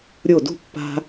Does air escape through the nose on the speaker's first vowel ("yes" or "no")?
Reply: no